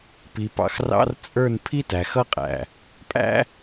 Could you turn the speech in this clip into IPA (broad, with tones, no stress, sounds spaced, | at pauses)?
p i˨ p ɑ̰˨ x r ɑ̰˦ r t͡sʼ ə˞˦˨ n pʰ i˦ t æ˨ x ʌ˦ qʼ æ̰˨ | pʼ æ̰˦